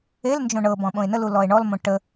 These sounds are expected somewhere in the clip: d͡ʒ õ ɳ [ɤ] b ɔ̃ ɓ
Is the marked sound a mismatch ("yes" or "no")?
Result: no